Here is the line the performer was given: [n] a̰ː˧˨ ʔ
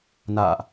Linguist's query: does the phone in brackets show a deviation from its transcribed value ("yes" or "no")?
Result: no